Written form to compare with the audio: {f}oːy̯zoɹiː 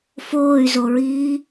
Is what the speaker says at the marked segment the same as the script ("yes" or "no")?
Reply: yes